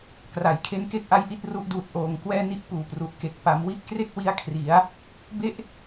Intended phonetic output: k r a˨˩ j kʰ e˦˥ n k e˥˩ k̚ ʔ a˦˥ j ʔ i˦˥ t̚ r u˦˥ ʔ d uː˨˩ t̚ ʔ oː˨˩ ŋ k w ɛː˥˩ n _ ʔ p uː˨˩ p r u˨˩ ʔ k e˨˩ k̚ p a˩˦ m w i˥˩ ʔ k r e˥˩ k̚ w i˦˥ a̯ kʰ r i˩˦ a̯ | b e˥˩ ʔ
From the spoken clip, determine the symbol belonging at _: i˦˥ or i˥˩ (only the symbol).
i˥˩